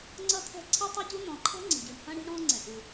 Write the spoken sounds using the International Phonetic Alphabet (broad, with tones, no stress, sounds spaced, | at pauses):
ŋ͡ǀ ʌ˥ t̪ʰ ɛ̤˥ ǀʰ i˥ tˤ ɨ˥ ɟ u˥ n̪ ɔ̃˩ ǃʰ ɛ̤˥ ŋ͡ǀ i̤˩ ɟ y˩ ɳ h ɐ̃˥ ɽ i̤˥ ɽ ɔ̃˥ ŋ͡ǀ ɛ̃˩ ʔ u˩